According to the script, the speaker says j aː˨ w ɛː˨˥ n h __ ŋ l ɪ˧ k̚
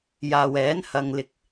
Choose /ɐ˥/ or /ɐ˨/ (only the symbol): ɐ˨